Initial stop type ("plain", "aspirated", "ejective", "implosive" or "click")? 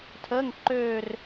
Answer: aspirated